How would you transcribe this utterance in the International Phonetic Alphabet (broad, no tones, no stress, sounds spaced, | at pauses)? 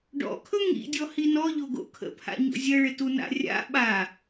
ɖ ɔ̰ kʰ ɵ ŋ ḭ dʲ ɔ h i n ɔ ʎ o ɡ o̰ kʰ ə̰ pʰ a̰ ɲ o̰ zʲ ə ɭ ɪ t u n a̰ rʲ a̰ ɓ a